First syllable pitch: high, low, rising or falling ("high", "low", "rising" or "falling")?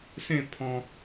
falling